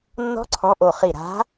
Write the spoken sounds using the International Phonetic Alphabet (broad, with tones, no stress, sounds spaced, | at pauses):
nː ɔ̤˦˥ ǀʰ ɔ̃˨˦ ʔ o˨˩ χ i˨˩ ɾ a̤˨˦